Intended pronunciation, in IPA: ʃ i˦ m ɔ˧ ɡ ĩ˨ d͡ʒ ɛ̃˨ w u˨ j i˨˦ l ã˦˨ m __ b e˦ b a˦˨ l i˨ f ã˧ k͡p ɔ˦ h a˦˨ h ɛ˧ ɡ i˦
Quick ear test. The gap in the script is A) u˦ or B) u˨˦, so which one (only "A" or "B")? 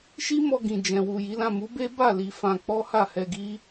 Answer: B